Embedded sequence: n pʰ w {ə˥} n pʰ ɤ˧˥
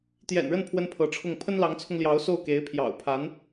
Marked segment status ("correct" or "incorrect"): correct